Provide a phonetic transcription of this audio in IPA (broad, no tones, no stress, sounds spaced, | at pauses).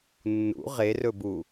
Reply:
nː ṵ ʁ e r ɵ b u